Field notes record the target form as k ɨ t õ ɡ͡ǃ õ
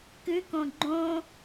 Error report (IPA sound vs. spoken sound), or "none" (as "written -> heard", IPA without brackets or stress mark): t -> k